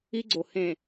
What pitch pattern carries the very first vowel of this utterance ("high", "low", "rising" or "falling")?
high